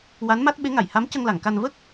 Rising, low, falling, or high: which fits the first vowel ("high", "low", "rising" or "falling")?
rising